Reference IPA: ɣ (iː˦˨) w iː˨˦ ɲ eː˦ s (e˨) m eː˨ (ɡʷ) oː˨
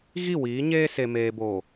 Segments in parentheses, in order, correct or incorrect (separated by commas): incorrect, correct, incorrect